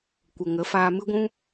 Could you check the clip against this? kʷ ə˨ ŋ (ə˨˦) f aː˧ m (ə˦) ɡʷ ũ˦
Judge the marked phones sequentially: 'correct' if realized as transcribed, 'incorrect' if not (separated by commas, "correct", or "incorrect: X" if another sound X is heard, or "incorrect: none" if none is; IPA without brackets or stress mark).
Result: correct, incorrect: ɨ˦